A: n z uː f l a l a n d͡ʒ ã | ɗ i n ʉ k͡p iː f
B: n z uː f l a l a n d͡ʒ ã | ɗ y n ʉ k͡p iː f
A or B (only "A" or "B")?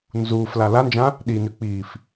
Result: A